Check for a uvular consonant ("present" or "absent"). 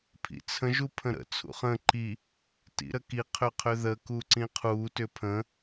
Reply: present